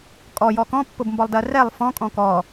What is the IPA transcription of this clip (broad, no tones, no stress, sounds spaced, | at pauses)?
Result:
kʼ ɔ j ɔ k ɔ̃ pː ʊ b m b ɔ lˠ d ɜ r ɛ lˠ f ɔ̃ kʼ ɔ̃ k ɔ